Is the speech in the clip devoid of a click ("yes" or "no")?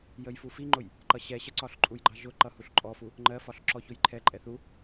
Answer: no